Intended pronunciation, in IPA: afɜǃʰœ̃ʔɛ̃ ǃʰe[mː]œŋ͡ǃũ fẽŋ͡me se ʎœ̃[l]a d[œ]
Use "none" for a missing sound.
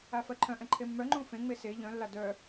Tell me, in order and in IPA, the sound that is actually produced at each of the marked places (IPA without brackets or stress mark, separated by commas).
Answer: mː, lː, œ